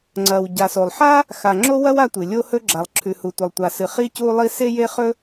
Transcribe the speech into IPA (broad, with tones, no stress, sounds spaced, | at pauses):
ŋ͡ǀ ɐ˩ w ɟ a˩ s o˩ lˠ ħ a˥ | x a˩ ŋ͡ǁ o˥ w ɐ˥ w a˥ tʷ ɨ˩ lʲ o˥ h ɵ˥ ɡ͡ǁ a˩ lˠ ǁʰ ʉ˩ h u˩ tʷ ɐ˩ lˠ tʷ a˩ s ɨ˩ χ i˥ c u˥ lˠ i˥ s e˥ j e˥ χ ɵ˥